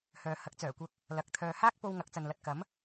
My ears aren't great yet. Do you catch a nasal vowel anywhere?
no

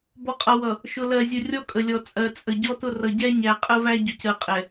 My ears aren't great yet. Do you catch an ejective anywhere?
yes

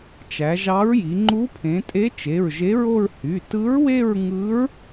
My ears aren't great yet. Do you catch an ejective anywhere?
yes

